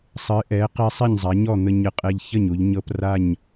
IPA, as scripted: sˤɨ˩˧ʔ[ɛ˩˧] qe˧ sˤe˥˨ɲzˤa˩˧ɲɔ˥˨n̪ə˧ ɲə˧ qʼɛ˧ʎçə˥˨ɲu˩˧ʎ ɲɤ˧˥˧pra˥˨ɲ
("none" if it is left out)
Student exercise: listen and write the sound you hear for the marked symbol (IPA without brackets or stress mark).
ɛ˩˧